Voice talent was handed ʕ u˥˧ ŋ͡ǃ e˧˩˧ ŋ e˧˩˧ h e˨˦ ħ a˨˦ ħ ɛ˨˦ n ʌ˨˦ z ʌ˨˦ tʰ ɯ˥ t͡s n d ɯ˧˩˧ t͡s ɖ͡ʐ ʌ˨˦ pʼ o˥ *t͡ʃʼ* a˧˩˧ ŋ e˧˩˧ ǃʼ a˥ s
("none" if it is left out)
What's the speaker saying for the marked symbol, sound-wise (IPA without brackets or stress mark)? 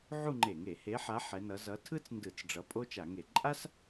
t͡ʃ